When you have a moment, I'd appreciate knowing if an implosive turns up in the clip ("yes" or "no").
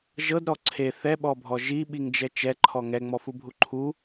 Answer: yes